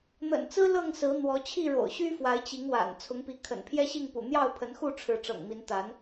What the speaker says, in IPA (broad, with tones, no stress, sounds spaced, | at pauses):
n̪ ə̰˨˩ n t͡s ɹ̩˦ l ɤ˥˨ ŋ s ɹ̩˨˦ n̪ w ɔ˨˦ t͡ɕʰ i˥˨ ɻ o̰˨˩ ʊ̯ ɕ y˦ f w a˨˦ ɪ̯ t͡ɕ i˨˦ ŋ w a̰˨˩ n t͡sʰ ʊ˨˦ ŋ p i˨˦ kʰ ə̰˨˩ n pʰ j ɛ˦ ɕ i˥˨ ŋ p ṵ˨˩ n̪ j ɑ˥˨ ʊ̯ pʰ ə˨˦ n x u˥˨ ʈ͡ʂʰ ɻ̩˨˦ ʈ͡ʂ ɤ̰˨˩ ŋ m i˨˦ n t̪ a˨˦ n